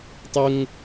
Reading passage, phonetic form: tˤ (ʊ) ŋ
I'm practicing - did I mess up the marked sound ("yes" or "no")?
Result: no